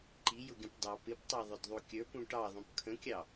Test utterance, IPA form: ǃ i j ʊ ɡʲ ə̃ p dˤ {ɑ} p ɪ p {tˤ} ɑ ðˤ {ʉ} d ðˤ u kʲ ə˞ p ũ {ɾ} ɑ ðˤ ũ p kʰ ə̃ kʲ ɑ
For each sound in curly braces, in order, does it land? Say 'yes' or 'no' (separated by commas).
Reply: yes, yes, no, no